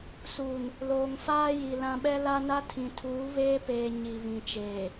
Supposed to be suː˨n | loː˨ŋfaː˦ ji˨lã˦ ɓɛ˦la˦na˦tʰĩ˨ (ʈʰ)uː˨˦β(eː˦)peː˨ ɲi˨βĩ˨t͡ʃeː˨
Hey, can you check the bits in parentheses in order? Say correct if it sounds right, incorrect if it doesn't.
incorrect: tʰ, correct

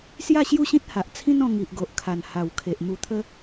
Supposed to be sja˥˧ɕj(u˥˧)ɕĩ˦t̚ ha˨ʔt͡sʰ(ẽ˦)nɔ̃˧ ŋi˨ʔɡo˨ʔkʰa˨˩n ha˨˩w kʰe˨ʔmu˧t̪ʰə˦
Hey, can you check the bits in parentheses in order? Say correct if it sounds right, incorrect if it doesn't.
correct, incorrect: ĩ˦

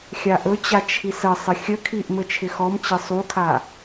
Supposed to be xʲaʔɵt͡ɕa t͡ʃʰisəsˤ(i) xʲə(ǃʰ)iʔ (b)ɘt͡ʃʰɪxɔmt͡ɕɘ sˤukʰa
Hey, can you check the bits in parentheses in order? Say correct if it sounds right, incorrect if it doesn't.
incorrect: ɪ, incorrect: kʰ, incorrect: m

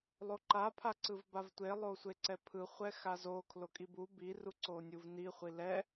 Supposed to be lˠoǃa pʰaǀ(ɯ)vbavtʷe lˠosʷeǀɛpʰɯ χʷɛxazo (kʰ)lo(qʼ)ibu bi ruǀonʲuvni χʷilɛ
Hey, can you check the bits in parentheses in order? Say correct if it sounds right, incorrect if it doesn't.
correct, correct, incorrect: kʼ

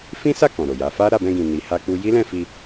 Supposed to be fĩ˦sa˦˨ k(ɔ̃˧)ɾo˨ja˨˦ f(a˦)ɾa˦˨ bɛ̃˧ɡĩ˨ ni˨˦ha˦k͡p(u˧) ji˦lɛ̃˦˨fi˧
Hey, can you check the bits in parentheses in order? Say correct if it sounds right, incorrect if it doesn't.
incorrect: ɔ̃˨, correct, incorrect: u˦

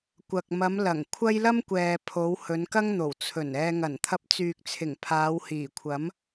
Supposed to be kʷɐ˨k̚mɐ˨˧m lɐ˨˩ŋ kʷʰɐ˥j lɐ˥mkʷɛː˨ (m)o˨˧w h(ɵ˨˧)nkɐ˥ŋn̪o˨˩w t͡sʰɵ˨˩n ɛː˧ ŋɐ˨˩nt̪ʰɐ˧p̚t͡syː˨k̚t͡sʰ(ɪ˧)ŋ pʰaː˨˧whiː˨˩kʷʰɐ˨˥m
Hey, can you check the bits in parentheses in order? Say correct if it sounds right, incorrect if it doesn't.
incorrect: pʰ, correct, incorrect: ɪ˨˩

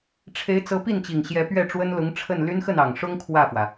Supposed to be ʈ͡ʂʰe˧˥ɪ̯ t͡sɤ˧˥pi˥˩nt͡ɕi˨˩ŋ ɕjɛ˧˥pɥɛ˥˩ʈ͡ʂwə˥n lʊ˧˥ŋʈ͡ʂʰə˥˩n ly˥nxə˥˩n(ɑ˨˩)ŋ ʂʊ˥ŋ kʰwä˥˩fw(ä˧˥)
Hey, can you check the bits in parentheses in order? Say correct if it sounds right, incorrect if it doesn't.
correct, incorrect: ä˩

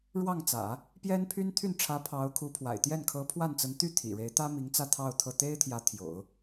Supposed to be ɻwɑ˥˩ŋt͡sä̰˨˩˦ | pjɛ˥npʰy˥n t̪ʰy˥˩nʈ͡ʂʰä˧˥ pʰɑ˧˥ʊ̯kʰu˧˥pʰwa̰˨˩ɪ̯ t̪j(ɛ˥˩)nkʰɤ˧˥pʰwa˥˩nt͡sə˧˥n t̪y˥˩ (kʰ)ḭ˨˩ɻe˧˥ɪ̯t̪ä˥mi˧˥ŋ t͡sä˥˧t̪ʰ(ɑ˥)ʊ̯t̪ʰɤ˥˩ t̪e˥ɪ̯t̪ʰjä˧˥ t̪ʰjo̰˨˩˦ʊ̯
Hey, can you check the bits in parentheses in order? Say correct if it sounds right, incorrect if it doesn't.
correct, incorrect: t̪ʰ, incorrect: ɑ˥˧

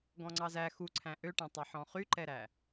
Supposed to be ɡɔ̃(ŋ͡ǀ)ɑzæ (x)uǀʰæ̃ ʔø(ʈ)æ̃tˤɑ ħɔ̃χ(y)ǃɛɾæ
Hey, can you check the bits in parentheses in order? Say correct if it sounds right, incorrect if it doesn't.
correct, correct, correct, correct

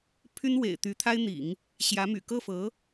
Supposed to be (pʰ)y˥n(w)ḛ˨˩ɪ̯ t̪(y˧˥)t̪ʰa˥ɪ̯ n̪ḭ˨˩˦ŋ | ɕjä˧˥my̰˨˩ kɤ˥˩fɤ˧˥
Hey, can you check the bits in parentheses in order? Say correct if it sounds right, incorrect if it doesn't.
correct, correct, correct

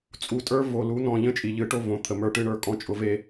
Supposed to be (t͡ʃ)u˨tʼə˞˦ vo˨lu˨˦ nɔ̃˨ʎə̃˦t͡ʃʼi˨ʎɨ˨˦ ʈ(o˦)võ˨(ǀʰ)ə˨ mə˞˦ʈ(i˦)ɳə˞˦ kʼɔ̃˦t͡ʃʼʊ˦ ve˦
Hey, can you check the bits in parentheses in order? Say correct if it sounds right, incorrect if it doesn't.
incorrect: t͡sʼ, correct, incorrect: t̪ʰ, incorrect: ɨ˦

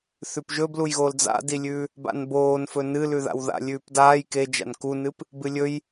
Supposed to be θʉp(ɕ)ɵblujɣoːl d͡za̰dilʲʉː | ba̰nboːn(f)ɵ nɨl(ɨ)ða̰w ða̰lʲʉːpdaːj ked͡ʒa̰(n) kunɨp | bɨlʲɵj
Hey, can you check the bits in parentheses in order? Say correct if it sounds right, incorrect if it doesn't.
incorrect: ʒ, correct, incorrect: ʉ, correct

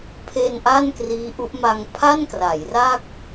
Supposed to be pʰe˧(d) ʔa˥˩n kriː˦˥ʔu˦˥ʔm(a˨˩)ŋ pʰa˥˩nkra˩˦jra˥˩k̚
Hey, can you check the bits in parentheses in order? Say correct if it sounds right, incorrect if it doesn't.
incorrect: n, incorrect: a˧

